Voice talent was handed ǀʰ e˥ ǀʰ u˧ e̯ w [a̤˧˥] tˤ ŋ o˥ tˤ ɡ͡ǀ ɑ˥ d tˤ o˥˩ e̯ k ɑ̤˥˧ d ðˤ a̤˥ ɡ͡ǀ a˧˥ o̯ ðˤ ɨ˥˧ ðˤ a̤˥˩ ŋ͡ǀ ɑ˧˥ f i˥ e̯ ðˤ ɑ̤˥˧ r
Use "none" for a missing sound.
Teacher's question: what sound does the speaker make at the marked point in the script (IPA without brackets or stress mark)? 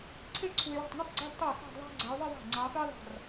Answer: a̤˥˩